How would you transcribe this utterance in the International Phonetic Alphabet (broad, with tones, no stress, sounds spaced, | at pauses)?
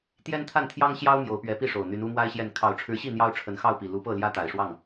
t̪ j ɛ˥ n t̪ʰ a˥˩ n t̪ʰ j ɑ˥ ŋ ɕ j ɑ˥ ʊ̯ m j o˧˥ ʊ̯ p ɥ ɛ˧˥ p i˥˩ ʂ o˨˩ ʊ̯ n̪ y˧˥ n u˥ m w a˥ ɪ̯ ɕ j ɛ˥˩ n kʰ ɑ˨˩ ʊ̯ ʈ͡ʂʰ ɻ̩˧˥ ɕ i˥˩ n̪ j ɑ˥ ʊ̯ ʈ͡ʂʰ ə˧˥ n x ɑ˥˩ ʊ̯ p i˨˩ l u˧˥ p ɤ˥˩ l j ä˥ t̪ a˨˩ ɪ̯ ʂ w ɑ˥˩ ŋ